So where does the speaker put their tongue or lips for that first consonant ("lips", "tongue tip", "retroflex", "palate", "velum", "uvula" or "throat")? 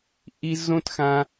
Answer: throat